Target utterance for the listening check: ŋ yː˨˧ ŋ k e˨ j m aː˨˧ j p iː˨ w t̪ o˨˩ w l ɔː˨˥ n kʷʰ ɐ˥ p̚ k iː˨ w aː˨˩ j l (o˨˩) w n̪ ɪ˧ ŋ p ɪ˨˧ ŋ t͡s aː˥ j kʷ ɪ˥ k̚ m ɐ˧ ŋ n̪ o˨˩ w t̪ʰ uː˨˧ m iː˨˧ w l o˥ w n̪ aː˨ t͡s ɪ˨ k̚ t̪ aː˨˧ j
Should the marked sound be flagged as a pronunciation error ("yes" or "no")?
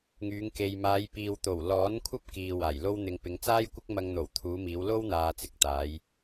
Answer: yes